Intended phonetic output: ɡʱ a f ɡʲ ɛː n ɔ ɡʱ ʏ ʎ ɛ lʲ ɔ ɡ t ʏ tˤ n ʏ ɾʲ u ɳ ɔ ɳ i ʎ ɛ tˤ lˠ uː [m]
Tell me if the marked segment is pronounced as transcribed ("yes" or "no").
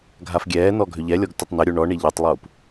no